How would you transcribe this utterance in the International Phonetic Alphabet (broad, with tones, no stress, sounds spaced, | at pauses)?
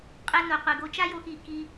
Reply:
qʼ ɛ˧ n o˨ qʷ i˨ ɡ o˧ t͡ʃ a˦ j o˧ x i˨ k i˧